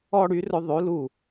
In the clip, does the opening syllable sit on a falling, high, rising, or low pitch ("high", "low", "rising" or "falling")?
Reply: high